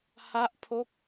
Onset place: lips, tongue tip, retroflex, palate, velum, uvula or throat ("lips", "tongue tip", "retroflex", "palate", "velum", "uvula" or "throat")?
throat